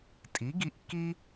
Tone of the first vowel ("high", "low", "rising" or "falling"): rising